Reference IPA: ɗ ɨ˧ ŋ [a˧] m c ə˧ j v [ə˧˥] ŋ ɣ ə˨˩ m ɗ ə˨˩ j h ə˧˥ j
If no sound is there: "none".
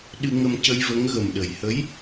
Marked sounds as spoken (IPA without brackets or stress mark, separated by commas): ə˧, ə˧˥